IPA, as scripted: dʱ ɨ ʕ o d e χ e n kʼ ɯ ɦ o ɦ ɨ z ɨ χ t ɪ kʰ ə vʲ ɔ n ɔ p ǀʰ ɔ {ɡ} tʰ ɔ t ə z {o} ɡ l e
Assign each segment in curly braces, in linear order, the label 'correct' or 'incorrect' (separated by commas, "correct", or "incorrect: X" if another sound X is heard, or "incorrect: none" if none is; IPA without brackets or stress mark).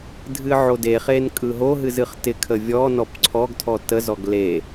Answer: correct, incorrect: ɔ